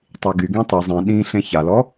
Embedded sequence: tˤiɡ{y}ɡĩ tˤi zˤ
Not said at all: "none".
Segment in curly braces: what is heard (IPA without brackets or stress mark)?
y